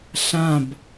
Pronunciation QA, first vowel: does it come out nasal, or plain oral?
nasal